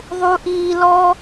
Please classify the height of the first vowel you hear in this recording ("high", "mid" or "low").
high